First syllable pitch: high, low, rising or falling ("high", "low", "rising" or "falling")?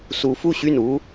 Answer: rising